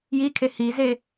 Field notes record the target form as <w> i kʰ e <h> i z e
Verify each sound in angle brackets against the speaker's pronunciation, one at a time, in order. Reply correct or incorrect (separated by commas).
incorrect, correct